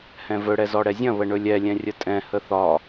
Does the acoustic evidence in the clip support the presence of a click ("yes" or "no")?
no